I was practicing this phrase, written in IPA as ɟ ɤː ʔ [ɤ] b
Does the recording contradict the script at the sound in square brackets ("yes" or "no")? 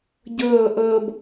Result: no